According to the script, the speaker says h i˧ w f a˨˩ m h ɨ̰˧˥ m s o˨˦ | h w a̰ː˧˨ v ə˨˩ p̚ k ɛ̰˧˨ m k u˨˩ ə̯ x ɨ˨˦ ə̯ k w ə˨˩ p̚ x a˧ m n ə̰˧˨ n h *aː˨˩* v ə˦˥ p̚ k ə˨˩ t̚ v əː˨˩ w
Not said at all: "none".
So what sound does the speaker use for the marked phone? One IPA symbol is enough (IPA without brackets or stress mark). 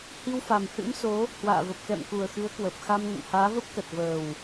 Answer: aː˨˦